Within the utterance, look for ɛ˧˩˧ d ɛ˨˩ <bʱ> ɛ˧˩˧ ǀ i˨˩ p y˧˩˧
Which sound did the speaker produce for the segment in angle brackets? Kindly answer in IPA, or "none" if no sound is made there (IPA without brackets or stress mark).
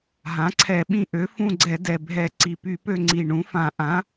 bʱ